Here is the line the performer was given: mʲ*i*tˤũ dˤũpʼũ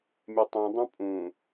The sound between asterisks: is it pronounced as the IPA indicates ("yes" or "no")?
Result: no